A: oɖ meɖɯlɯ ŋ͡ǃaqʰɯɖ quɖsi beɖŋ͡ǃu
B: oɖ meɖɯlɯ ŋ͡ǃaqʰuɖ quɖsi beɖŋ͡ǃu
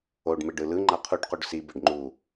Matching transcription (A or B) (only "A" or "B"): B